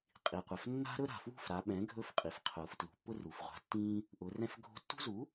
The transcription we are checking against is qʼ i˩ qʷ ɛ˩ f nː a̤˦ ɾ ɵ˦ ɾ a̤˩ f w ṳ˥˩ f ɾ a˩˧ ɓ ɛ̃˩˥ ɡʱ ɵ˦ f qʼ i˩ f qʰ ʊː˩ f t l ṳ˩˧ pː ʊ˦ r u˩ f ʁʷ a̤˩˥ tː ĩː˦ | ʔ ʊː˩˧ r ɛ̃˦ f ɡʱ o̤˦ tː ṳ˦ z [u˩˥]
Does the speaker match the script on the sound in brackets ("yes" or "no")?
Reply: yes